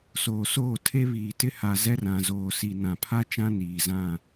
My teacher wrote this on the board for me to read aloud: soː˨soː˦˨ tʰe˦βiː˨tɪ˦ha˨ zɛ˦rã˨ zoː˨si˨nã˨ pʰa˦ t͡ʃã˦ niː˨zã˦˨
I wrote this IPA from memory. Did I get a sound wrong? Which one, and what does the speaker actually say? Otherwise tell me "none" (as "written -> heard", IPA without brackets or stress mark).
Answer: none